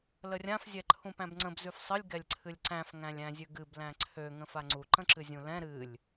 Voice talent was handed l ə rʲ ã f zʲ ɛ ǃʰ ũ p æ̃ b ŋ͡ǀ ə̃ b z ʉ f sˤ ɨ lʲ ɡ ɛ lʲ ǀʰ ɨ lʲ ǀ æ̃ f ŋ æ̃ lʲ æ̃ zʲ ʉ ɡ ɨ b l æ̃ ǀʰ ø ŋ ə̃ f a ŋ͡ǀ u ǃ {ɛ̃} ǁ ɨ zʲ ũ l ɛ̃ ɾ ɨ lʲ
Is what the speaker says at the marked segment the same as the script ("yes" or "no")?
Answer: no